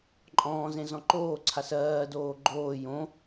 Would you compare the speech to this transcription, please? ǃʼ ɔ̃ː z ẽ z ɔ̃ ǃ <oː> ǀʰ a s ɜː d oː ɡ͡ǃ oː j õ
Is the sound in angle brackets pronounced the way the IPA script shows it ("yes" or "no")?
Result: yes